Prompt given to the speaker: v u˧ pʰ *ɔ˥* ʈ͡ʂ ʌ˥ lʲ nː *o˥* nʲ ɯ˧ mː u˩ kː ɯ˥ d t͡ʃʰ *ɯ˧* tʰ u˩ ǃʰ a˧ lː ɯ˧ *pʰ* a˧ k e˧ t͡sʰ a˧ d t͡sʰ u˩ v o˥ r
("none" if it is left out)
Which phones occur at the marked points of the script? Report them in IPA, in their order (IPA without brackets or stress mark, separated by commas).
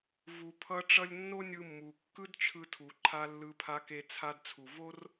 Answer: ʌ˥, o˥, ɯ˧, pʰ